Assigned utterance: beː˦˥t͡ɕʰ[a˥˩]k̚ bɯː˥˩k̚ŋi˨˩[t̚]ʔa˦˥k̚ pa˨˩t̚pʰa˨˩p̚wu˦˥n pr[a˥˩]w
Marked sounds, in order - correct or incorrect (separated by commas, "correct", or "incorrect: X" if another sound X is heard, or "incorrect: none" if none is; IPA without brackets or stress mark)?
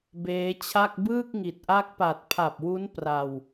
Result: correct, correct, incorrect: a˧